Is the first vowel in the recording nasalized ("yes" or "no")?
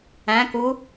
yes